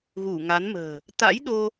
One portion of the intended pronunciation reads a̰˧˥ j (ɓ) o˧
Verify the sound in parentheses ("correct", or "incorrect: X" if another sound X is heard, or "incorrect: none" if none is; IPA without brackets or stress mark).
incorrect: ɗ